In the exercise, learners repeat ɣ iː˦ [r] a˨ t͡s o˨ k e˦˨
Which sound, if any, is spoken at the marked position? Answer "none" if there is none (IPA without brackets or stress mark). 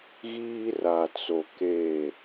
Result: r